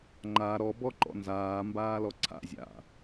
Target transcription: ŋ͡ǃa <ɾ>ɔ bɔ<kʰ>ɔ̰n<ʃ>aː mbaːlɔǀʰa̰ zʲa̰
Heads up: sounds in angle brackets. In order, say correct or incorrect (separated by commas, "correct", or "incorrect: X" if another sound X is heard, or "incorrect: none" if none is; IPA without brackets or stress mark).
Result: correct, incorrect: ǃ, incorrect: z